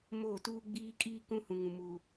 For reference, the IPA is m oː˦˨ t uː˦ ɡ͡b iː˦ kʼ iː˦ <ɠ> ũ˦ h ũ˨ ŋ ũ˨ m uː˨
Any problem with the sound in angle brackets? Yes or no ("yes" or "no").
yes